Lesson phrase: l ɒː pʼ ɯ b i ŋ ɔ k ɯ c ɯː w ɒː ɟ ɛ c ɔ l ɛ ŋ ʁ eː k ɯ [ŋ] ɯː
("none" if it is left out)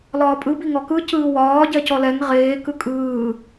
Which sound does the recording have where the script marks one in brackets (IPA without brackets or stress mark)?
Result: kʼ